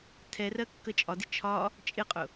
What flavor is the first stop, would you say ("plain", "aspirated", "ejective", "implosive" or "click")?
aspirated